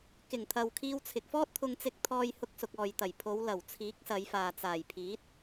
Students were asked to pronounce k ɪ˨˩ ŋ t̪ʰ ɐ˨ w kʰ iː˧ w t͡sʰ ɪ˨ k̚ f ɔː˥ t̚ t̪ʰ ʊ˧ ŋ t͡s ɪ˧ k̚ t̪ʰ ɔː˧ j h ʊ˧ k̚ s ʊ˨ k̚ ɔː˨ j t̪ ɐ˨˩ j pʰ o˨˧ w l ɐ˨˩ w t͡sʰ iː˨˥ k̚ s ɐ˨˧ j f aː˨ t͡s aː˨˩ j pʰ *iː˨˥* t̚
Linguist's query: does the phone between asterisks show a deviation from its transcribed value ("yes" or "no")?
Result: no